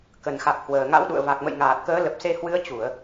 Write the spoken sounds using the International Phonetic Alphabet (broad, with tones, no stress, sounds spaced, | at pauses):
k ə˨˩ n x a˨˩ k̚ h w əː˨˩ ŋ a̰˧˥ w ɗ ṵ˧˨ ə̯ v a˨˩ k̚ m ə̰˧˨ j ŋ aː˨˩ t̚ k əː˨˦ l ə˨˩ p̚ s e˧ h w ɨ˨˦ ə̯ t͡ɕ u˧˩˨ ə̯